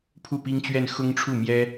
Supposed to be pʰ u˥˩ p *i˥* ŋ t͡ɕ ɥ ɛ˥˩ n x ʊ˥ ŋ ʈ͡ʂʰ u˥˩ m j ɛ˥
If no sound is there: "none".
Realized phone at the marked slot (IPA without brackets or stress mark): i˥